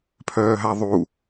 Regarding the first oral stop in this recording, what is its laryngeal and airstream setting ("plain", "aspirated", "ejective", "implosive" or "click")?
aspirated